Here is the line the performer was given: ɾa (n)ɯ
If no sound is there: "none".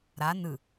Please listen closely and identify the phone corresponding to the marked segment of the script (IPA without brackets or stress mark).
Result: n